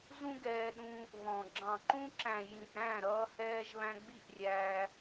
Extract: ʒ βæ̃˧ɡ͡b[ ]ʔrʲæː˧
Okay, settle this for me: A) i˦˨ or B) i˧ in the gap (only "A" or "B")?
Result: A